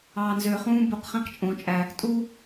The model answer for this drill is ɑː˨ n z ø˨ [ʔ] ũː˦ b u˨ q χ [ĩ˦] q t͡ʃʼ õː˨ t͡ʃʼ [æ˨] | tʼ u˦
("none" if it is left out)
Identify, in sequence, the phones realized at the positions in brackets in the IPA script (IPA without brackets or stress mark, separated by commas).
χ, ĩ˦, æ˨